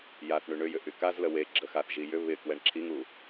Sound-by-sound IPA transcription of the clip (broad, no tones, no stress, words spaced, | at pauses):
jaθ ɳyɳʏjʏ ʔykazlə we ɡ͡ǁəxaθʒi jʏ βɪ kwɛɳǁʰiŋu